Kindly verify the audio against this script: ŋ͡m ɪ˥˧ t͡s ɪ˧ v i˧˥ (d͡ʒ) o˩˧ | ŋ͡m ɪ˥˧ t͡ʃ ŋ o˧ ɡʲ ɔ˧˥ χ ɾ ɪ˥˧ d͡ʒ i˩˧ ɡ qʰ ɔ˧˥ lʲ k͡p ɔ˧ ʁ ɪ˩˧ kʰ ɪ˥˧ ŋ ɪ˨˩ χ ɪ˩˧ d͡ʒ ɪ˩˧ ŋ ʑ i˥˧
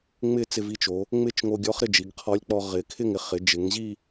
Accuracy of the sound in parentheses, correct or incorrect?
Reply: incorrect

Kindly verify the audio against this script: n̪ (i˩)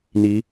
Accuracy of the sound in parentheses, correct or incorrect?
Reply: incorrect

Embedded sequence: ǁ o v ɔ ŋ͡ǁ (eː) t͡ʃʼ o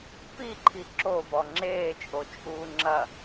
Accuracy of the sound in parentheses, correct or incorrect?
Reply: correct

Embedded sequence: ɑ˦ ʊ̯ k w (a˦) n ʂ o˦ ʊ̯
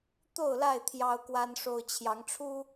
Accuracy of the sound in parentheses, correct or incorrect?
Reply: correct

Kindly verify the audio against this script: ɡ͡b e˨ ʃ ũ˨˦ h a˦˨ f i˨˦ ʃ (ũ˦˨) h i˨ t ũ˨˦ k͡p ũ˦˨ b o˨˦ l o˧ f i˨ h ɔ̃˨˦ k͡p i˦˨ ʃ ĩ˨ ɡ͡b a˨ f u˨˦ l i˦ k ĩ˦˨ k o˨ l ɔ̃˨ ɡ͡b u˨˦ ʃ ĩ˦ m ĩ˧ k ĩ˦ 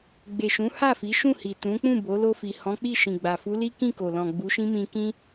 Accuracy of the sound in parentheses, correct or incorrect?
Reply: correct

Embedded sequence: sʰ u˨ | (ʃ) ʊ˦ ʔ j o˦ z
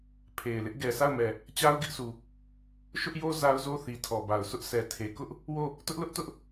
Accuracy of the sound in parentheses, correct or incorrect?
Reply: correct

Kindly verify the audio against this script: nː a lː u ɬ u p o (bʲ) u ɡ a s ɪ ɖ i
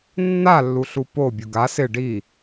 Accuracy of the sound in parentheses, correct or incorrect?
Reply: correct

